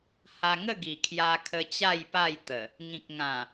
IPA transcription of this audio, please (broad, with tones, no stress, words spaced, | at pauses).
ha˧ŋə˥˧ ɡi˨˩kʰja˧kʰə˧ t͡ɕa˥˧jpa˥˧jt̪ə˨˩ | ŋĩ˨k̚ŋã˨˩